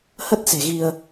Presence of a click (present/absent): absent